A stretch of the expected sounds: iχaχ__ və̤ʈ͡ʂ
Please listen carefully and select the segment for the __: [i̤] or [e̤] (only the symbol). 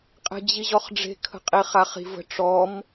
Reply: i̤